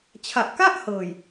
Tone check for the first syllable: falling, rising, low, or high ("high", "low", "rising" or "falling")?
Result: low